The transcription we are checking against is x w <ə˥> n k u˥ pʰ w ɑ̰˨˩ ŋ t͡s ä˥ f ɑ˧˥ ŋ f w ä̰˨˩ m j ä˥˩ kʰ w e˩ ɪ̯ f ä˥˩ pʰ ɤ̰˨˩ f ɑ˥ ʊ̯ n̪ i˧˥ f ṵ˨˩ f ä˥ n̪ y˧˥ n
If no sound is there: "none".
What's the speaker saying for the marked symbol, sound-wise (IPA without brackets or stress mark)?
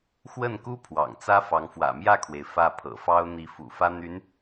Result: ə˥˩